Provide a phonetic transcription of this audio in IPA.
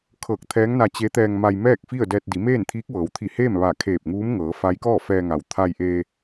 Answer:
kʰ ɤː˧˩ k̚ t̪ʰ ɛː˧˥ ŋ n a˧ t͡ɕ e˧˥ t̪ ɛː˧ ŋ m a˧ j m ɛː˥˨ k̚ f i˥˨ ə̯ d ɛː˧ t̚ d i˩˧ m eː˥˨ n t̪ʰ iː˧˥ k̚ ʋ ɤː˩˧ w t̪ʰ i˧˩ h eː˥˨ m ʋ a˧˩ kʰ eː˧˩ p̚ ŋ uː˧˥ m ŋ ɤː˩˧ f a˧˥ j k ɔː˥˨ f ɛː˧ ŋ a˩ w t̪ʰ a˧ j ʔ eː˧

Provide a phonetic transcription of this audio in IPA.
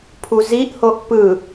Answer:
pʰ u z i ʔ h o ʔ p ɯ

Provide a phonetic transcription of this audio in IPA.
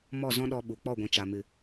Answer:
m ɔ˦˨ z ɔ̃˦ ɗ ɔ˧ ɓ u˨ k͡p ɔ˦˨ ɡʷ ĩ˨ t͡ʃ a˨ m ɨ˨

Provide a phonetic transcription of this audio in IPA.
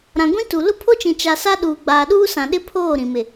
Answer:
ɾ ã˨ ɡʷ ĩ˦ t u˨ l ʊ˦ pʰ o˦ t͡ʃ ĩ˨ t͡ʃ a˨ s a˦ ɗ uː˨ ɡ͡b aː˨ ɗ uː˦ s ã˨ ɗ ɪ˦ pʰ oː˦˨ ɾ ĩ˨ m ɪ˨

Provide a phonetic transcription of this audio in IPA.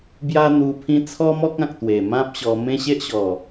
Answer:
b j a˦ n̪ u˧ pʰ ĩ˦ t͡sʰ ɔ˦ m ɔ˦ k̚ ã˨ k̚ t̪ w e˨˩ m ã˦ p̚ ɕ ɔ˧ m ẽ˦ ɕ e˦ ʔ ɕ ɔ˨˩

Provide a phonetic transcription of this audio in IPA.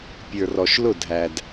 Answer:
pʲ ə˞˨ r ɔ˨ ʃ l ʊ˦˨ dʱ æ˨ d

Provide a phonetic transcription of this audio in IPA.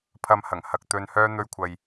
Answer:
pʰ ɐ˧ m h ɐ˨˩ ŋ h ɐ˨ k̚ t̪ ɵ˧ n h œː˥ n̪ ɵ˧ ɥ kʷʰ ɐ˨ j

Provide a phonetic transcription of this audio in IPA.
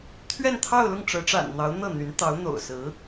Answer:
t̪ʰ ɥ ɛ˥˧ n t̪ʰ ɑ˥˧ ʊ̯ l ʊ˥˩ ŋ ʈ͡ʂ ɤ˧˥ ʈ͡ʂ a̰˨˩ n n̪ ɑ˧˥ ʊ̯ n̪ ɤ˥˩ n̪ y˧˥ n t̪ ɑ˧˥ ʊ̯ n̪ o̰˨˩ ʊ̯ s ɹ̩˧˥

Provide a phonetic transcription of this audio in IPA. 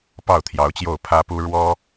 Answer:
p ɑ˥˩ ʊ̯ t̪ʰ j ɑ˧˥ ʊ̯ t͡ɕ j o˥˩ ʊ̯ pʰ ä˥ p u˥ ɻ w ɔ˥

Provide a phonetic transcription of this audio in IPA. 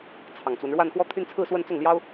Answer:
t͡sʰ ɑ˨˩ ŋ t͡s w ə˦ n ɻ w a˥˧ n x w ɔ˥˩ t̪ʰ y˥ n t͡sʰ ɹ̩˥˧ s w ə˥˧ n t͡s ʊ˥˩ ŋ l j ɑ˥ ʊ̯

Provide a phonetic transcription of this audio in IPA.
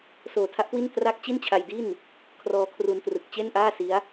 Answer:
s oː˨˩ tʰ a˦˥ ʔ k w i˥˩ n t r a˥˩ k̚ t͡ɕ i˥˩ n t͡ɕʰ a˧ j d i˥˩ n | kʰ r ɔː˧ kʰ r u˧ n t r ɯ˨˩ k̚ t͡ɕ e˥˩ n ʔ aː˥˩ s i˦˥ a̯

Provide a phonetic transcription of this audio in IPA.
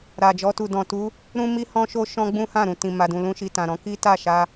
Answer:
ɾ a˨ d͡ʒ ɔ˧ t u˨ d ɔ̃˨ t u˨˦ | ɾ ũ˦ m i˦ h ɔ̃˦ ʃ o˦ ʃ ɔ̃˦ ɡ͡b ũ˦ h ã˦˨ ɾ ũ˨ t ĩ˨ m a˨ d ũ˨ l ũ˧ ʃ i˨ t ã˨ ɾ ɔ̃˨˦ k i˦ t a˦˨ ʃ a˧

